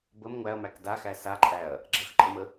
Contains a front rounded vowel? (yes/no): no